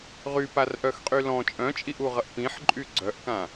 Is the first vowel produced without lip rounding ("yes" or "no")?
no